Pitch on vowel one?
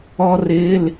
high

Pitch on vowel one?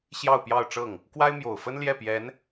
falling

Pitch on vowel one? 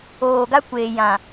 low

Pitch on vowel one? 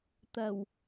low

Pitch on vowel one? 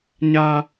high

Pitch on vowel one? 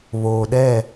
low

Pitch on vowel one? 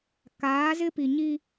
rising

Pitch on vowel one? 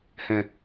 low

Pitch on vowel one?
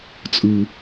low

